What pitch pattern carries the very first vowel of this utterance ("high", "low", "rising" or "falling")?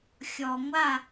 low